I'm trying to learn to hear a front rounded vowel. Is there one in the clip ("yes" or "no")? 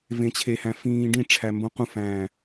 no